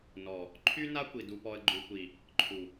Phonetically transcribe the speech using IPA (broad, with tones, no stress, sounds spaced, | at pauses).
n ɔ˨ | ǃʰ y˦ n a˦ kʷ i˨ d u˨ p ɔ˨ ə̯ ɡ͡ǃ u˨ kʷ i˨ | ǃʰ u˨